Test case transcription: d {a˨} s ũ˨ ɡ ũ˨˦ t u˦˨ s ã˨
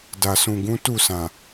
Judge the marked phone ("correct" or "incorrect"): correct